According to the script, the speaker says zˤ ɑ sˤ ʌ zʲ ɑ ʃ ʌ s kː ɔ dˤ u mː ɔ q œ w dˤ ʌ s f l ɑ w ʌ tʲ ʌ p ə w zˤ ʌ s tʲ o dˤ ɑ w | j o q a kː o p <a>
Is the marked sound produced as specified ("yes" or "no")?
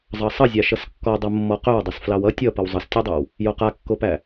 no